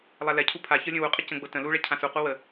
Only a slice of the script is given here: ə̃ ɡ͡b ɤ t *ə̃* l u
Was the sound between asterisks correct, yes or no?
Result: yes